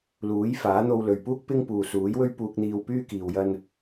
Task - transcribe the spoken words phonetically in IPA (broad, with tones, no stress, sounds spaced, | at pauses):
l uː˨˥ j f aː˨˥ n̪ o˧ w l ɵ˨ ɥ p uː˥ k̚ p ɪ˥ ŋ p uː˨ s uː˨˥ j w ɵ˥ ɥ p uː˧ k̚ n̪ iː˧ w p yː˥ k iː˧ w j ɐ˥ n